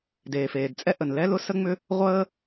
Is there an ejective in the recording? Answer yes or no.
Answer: yes